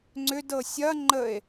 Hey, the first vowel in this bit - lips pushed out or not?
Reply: yes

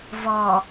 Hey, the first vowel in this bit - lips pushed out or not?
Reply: yes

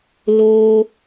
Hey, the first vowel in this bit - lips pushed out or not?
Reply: yes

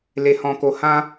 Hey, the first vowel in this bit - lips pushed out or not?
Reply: no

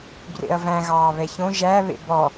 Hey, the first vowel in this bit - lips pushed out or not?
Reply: no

